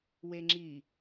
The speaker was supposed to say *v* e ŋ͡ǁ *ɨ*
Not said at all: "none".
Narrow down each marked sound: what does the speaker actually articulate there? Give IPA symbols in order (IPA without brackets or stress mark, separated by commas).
w, i